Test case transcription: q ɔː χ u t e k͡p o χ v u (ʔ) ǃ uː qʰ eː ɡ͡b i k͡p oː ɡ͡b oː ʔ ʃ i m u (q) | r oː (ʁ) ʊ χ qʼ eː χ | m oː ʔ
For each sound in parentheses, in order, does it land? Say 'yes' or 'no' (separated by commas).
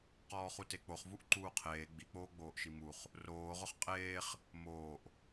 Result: yes, no, yes